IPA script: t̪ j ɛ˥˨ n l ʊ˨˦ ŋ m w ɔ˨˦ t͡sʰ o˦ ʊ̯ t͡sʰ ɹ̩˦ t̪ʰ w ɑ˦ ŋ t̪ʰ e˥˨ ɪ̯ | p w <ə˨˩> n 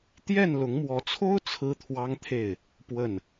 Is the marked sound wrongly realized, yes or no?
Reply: yes